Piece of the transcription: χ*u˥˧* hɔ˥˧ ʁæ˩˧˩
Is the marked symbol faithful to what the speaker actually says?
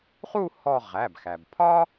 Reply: yes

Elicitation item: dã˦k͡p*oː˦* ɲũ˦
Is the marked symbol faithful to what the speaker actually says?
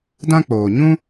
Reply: no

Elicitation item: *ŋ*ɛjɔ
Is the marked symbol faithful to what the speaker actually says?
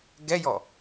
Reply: no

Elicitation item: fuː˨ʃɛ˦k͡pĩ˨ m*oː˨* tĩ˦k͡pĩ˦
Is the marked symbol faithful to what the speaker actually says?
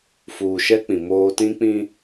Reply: no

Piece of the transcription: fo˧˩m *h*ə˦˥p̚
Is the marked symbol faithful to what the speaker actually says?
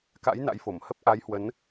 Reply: yes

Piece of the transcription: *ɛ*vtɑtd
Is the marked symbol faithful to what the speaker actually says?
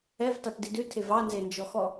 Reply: yes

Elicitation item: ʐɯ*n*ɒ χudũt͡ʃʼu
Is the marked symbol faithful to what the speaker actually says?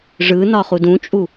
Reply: yes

